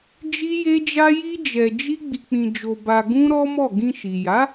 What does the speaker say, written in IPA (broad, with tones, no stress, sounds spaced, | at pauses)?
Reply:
d͡ʒ i˦ j e˦ d͡ʒ a˦ j i˦ d͡ʒ ɛ˧ d͡ʒ i˦ ɡ͡b i˧ k͡p ĩ˧ d͡ʒ o˧ b a˧ ɡ ũ˦ ɾ ɔ˦ m ɔ˦˨ ɡ ĩ˧ ʃ i˨ j a˨˦